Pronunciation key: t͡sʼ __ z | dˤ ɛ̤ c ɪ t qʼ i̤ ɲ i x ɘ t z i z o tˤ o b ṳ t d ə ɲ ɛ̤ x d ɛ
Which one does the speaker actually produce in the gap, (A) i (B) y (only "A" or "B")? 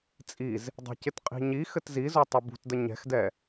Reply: A